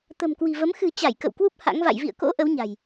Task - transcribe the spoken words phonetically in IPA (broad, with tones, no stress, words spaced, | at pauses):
t̪ə̤˨˩mkwi̤˨˩ və˨˦m xɨ̤˨˩ t͡ɕa˧˩j kə̰˧˨wkwu˦˥p̚ ha̰˧˥ŋva̰˧˨j vḭ˧˨ə̯ko̰˧˥ ʔə˨˦wɲa̤˨˩j